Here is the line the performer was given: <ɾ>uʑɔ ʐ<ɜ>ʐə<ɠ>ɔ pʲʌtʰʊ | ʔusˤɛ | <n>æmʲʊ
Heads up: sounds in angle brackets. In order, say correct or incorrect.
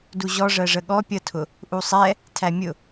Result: incorrect, correct, correct, incorrect

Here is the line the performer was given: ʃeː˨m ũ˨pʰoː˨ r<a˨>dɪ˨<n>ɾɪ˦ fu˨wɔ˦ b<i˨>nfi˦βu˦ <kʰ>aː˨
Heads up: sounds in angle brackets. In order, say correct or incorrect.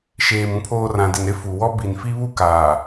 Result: incorrect, correct, correct, incorrect

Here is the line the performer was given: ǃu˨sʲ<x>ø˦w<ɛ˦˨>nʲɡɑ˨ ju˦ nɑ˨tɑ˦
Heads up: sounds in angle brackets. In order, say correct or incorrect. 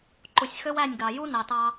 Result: correct, incorrect

